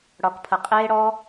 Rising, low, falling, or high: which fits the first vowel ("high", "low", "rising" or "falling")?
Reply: low